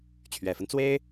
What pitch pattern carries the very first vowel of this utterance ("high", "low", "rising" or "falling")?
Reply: low